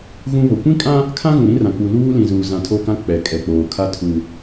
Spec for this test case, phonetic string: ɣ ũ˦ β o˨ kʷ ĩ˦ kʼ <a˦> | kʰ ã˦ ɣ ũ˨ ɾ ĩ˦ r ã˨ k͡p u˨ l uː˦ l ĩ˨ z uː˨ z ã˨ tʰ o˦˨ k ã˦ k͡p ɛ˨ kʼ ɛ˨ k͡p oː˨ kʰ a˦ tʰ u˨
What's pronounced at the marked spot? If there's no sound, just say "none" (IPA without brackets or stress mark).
ã˦